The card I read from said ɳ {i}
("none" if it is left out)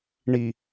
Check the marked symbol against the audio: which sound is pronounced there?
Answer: i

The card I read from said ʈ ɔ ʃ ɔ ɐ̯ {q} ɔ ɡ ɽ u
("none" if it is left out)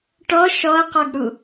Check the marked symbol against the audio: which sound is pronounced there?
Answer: q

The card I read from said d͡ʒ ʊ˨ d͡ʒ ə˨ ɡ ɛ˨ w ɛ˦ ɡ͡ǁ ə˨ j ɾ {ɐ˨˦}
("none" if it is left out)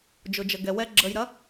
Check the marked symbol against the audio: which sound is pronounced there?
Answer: ɐ˨˦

